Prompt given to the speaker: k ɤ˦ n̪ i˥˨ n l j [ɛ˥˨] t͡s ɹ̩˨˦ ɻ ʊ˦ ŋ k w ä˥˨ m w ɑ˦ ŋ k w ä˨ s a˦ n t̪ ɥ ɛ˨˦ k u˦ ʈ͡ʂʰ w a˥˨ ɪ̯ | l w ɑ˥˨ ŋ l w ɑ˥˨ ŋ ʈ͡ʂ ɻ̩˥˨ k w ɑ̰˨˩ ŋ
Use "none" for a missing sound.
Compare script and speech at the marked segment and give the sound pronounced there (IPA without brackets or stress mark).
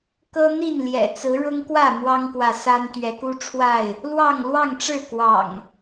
ɛ̰˨˩